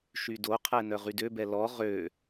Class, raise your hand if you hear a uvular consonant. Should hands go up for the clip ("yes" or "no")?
yes